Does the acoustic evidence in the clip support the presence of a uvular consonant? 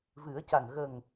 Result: no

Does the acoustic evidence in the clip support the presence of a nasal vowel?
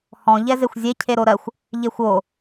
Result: yes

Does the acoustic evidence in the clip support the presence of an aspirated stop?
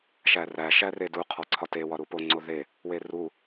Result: yes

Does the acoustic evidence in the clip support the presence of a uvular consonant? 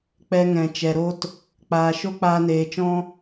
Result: no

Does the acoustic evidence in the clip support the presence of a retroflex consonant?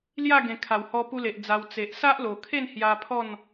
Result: no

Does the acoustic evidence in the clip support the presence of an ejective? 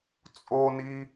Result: yes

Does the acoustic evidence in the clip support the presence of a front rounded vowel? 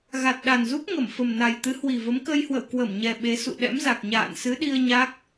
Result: no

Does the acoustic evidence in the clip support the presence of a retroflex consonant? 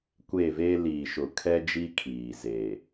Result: no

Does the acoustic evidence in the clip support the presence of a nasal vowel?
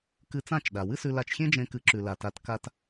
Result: yes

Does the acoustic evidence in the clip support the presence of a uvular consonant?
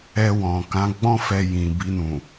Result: no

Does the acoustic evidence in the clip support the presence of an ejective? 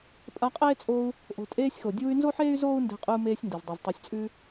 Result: yes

